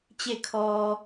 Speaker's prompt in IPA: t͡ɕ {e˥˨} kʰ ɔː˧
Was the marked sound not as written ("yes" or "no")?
no